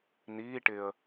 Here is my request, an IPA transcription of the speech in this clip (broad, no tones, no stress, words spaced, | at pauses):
niː ʈɪə̯